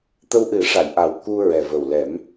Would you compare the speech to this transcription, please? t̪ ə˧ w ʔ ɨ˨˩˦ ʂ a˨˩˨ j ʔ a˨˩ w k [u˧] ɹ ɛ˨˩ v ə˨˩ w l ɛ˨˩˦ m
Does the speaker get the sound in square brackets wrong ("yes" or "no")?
no